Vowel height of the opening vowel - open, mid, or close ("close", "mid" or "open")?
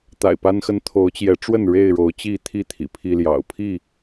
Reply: open